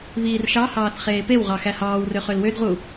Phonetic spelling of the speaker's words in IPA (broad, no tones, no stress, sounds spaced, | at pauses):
β iː r ʃ ɑ h ɑː θ χ eː p e w ʁ ɑ x æ h ɑː w r ø χ ø l w ø d ʁ u